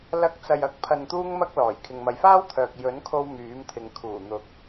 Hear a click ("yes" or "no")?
no